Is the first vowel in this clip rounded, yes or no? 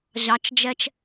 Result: no